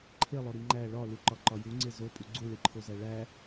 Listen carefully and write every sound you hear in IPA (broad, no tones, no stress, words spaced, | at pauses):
ǃʰelˠoɾi ŋ͡ǃæ ɭɒluǃɒǃɒ juŋ͡ǀe zopʼu ɡ͡ǀuɭiǃʰozæ ɭæ